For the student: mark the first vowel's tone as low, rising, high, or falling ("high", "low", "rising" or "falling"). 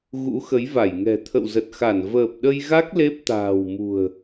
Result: rising